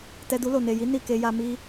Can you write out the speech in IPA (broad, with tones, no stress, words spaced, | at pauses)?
tɛ˧du˧lo˨ ne˨ji˨˦ ni˦˨ke˧ja˧ mi˧